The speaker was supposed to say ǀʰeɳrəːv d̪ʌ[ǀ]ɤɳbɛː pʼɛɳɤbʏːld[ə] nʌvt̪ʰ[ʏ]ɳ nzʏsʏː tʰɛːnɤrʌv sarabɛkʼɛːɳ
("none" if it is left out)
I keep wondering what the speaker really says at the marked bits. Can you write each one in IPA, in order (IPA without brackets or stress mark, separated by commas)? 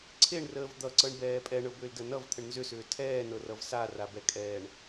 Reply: ǀ, ə, ə